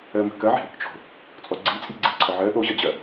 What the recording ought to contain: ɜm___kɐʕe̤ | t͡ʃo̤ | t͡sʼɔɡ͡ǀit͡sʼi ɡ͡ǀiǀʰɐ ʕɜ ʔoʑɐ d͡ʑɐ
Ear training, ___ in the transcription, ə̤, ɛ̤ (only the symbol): ə̤